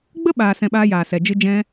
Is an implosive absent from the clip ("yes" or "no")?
no